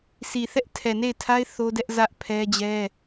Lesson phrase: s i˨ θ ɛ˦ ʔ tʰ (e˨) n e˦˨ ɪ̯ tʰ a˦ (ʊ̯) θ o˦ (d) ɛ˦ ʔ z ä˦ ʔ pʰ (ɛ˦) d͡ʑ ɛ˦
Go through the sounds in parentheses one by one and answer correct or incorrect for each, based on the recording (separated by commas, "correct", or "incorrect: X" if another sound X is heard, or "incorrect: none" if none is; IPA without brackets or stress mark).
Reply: incorrect: ɛ˨, incorrect: ɪ̯, correct, correct